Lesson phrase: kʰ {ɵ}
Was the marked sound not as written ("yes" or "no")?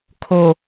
yes